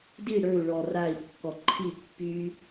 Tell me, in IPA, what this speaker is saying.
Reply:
d i ɽ ə˞ u̯ ɭ ɔ r a i̯ kː ɔ ǃʰ i pː y

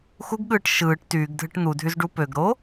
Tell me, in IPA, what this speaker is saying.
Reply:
x u ɡ ɠ ɯː ʈ ʃ ɯː ʈ t yː ɡ dʱ ɯ ʈ n̪ u dʱ y z ɖ u p ø ɡ ɾ o

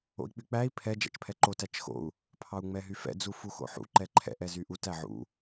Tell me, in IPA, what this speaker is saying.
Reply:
o̰ i̯ k͡p y k͡p æ i̯ pʰ ɛ d͡ʒ æ̰ t͡ʃ pʰ ɛ ǃ o t æ t͡ʃ x o̰ u̯ | pʰ ɑ u̯ ŋ͡m ɛ ɦ y f ɛ̰ d͡z u f u x o̰ ħ ṵ ǃ ɛ ǃʰ ɛ̰ ʔ ɛ z y ʔ u t æ ʕ ṵ

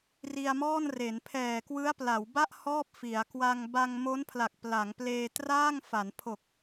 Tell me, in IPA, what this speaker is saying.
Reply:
r i˧ a̯ m ɔː˥˩ n r e˩˦ n pʰ ɛː˨˩ k w ɯ˦˥ a̯ p l a˩˦ w b a˥˩ ʔ h ɔː˥˩ p̚ f i˩˦ a̯ k w a˧ ŋ b a˧ ŋ m o˦˥ n pʰ l a˨˩ k̚ p l a˩˦ ŋ p l eː˧ t r aː˥˩ ŋ f a˩˦ n pʰ o˨˩ k̚

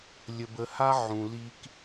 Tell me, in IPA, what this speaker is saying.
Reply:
lʲ ə˨ b ə˨ h a˦ ʕ ũ˨ l i˦ k

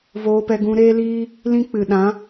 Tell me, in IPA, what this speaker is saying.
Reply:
v oː˧ p ɛ˧ ɡ ũ˧ ɾ eː˦ l iː˦ | l ĩ˦ k͡p ɨ˨ ɗ ã˨˦

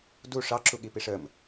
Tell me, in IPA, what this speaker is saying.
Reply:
d u ʂ ɑ ǁ u ɠ i p i ʂ ə m

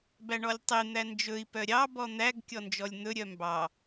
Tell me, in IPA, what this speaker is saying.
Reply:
b æ ɳ ɔ lʲ tˤ e n̪ æ n d͡ʒ ɵ i̯ p œ ɾʲ ɑ b ɔ n̪ æ ɡ kʲ ɔ n d͡ʒ ɔ lʲ n̪ ɵ ɾʲ œ m b ɑ

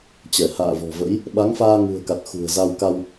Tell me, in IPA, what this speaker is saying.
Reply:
t͡ɕ ɛ˧˩ h a̰ː˧˨ v ɔ̤˨˩ v ə̰˧˥ j | ɓ a˨˦ ŋ f aː˧ ŋ ṳ˨˩ ə̯ k a˨˩ t̚ x ṳ˨˩ ə̯ z a˧ w k a˧ w

